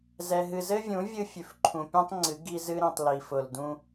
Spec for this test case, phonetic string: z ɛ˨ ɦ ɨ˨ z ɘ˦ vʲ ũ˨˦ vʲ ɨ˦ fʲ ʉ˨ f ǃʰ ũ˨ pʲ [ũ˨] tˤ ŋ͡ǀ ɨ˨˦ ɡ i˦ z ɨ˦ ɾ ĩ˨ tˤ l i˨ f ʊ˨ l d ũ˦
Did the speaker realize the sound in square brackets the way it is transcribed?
no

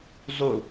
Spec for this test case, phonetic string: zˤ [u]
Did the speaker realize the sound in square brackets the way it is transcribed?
yes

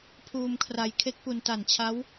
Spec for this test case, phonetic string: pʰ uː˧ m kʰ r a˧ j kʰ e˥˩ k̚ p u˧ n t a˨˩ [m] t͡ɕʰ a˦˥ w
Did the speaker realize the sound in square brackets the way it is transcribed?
no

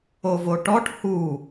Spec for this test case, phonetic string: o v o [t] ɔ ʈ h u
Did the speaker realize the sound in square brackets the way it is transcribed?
no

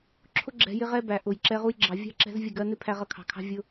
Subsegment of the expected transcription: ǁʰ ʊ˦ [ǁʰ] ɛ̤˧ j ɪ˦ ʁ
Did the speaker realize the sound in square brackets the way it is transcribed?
no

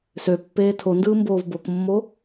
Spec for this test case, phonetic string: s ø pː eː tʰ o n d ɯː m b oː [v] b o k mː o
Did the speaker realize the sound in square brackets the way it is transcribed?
yes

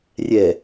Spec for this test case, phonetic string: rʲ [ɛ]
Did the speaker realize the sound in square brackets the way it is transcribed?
yes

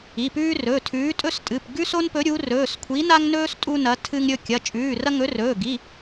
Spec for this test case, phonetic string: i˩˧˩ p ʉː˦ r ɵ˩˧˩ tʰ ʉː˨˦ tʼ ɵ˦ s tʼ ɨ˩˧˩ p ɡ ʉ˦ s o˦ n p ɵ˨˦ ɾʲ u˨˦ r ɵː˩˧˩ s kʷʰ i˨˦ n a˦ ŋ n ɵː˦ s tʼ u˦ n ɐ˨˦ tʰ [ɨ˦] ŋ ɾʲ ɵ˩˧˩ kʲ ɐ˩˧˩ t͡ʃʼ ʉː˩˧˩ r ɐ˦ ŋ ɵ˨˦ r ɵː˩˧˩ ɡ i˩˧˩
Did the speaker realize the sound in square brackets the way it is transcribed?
yes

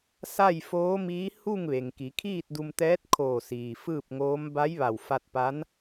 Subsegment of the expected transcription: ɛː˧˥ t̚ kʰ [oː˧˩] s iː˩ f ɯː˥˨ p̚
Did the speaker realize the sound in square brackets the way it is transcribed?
yes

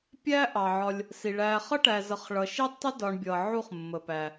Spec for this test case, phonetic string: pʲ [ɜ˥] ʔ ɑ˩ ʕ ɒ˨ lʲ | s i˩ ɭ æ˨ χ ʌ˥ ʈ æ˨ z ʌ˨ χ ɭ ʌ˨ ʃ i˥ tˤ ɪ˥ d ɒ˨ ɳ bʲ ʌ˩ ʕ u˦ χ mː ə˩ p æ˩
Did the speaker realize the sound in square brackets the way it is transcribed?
no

